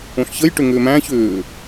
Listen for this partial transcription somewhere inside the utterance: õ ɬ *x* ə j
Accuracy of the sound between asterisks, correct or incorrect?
incorrect